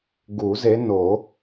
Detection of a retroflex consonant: absent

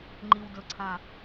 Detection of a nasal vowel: present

